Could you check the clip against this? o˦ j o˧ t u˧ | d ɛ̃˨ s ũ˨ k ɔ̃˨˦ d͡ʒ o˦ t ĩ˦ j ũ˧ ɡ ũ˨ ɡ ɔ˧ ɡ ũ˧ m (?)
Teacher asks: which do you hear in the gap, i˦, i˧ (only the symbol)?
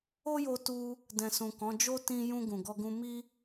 i˦